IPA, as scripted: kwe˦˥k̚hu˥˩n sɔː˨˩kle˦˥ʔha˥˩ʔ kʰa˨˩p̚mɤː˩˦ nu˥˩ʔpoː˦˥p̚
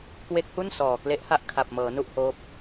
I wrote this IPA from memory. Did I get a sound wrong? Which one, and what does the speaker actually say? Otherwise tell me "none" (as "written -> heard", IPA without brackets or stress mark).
p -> h